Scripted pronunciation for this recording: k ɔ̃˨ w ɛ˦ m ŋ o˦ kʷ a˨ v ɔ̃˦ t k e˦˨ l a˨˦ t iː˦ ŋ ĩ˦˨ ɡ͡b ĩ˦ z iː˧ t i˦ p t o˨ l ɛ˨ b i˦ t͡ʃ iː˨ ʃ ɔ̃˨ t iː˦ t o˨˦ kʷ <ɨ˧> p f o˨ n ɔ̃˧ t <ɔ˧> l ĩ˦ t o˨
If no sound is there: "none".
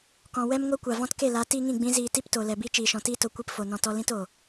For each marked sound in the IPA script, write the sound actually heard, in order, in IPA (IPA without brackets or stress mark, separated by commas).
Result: i˧, ɔ˧